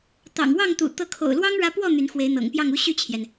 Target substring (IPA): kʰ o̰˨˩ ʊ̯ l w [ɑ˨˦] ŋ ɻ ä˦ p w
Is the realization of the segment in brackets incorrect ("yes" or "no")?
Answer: yes